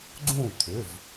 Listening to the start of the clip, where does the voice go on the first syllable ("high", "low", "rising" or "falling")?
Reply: falling